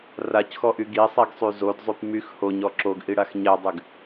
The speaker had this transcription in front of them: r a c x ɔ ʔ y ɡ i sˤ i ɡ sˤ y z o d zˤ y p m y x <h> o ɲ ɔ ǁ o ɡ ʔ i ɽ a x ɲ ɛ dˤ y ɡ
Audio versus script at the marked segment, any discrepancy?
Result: no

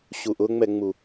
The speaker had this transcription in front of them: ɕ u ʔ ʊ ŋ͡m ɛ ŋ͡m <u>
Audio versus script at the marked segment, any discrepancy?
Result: no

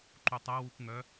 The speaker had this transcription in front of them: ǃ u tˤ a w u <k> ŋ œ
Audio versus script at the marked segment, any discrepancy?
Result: no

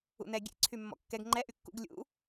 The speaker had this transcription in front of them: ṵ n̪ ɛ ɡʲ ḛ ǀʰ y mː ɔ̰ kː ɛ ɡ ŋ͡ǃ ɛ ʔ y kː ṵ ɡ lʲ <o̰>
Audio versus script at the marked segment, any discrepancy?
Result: yes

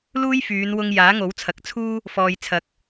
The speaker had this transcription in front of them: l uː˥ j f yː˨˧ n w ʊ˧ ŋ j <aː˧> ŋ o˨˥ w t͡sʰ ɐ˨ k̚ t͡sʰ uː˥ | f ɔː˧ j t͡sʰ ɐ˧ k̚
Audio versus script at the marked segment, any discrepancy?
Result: yes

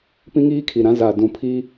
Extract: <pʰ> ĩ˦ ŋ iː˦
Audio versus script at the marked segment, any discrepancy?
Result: yes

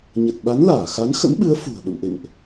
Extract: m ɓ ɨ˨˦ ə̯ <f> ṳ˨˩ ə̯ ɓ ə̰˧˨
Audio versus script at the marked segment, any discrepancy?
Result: no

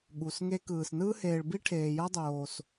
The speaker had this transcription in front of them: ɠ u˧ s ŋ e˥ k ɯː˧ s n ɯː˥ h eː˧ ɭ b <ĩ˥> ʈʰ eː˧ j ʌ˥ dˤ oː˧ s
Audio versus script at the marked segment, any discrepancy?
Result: yes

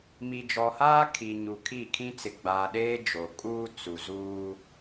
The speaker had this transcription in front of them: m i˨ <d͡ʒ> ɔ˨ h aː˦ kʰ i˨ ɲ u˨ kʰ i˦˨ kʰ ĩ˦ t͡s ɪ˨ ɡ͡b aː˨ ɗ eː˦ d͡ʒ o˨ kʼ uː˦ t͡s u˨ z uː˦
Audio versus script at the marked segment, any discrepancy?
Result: no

